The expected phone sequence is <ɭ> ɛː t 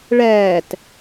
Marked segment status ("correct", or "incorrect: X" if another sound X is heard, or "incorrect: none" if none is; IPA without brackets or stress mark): correct